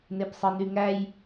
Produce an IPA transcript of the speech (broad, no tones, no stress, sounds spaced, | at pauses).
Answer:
n e p sˤ ɯ n y ŋ æ j